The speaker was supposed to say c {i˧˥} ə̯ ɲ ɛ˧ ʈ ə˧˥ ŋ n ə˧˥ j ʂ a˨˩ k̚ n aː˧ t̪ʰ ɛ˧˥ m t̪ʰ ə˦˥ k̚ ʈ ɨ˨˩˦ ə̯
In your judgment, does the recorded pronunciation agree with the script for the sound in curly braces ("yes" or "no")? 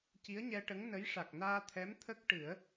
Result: yes